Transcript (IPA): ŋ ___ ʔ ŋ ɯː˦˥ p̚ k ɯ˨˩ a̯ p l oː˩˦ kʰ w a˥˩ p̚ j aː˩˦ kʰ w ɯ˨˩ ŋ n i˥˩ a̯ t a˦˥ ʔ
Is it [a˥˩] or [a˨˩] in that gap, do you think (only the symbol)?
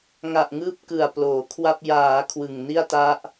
a˨˩